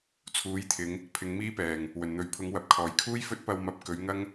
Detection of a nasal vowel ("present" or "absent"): absent